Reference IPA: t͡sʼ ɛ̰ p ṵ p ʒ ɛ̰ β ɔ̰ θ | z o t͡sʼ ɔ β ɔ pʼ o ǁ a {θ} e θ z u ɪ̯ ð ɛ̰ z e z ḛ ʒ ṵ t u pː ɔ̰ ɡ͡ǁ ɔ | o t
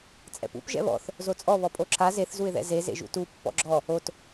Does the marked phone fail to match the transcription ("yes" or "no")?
yes